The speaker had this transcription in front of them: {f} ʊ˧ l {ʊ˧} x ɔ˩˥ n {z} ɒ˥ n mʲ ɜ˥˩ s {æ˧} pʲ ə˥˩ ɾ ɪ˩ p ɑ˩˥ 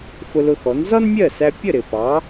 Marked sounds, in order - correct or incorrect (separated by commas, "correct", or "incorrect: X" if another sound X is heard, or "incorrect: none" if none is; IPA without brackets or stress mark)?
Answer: correct, correct, correct, correct